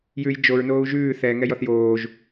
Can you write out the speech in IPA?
j ʉ j d͡ʒ o ɹ n oː u̯ ʒ ʉː θ ɛ ŋ ɛ j ɔ θ j oː ʒ

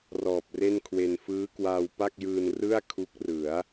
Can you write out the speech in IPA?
r ɔː˨˩ p̚ r e˥˩ n kʰ w e˧ n f ɯː˦˥ k w aː˧ w p a˥˩ k̚ j ɯː˧ n r ɯ˥˩ a̯ kʰ u˦˥ k̚ r ɯ˩˦ a̯

